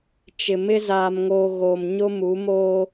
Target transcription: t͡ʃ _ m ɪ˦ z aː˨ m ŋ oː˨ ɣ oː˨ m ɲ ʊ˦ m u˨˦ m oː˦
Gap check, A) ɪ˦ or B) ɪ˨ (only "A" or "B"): B